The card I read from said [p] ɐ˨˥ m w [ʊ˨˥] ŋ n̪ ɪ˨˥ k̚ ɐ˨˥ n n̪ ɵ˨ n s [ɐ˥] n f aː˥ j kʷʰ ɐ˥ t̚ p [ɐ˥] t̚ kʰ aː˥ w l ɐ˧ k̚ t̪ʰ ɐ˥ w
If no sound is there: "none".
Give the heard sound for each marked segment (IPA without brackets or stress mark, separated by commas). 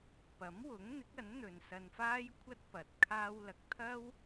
p, ʊ˨˥, ɐ˧, ɐ˨